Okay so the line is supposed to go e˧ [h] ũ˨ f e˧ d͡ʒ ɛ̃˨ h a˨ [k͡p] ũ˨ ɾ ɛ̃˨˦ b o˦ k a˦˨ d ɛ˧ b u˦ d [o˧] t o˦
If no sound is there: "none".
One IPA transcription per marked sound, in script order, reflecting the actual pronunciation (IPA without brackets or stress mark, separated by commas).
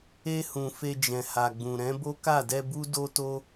h, ɡ͡b, o˦